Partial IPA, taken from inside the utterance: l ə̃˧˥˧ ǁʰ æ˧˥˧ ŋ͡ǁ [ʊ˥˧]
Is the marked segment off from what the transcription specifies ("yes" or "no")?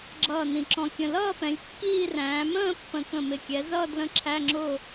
no